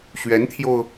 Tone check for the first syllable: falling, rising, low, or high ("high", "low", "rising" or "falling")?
rising